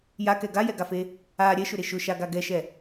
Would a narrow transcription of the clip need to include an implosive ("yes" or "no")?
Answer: no